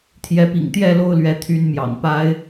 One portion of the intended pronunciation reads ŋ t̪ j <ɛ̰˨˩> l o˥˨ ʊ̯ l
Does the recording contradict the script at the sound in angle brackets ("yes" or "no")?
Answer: yes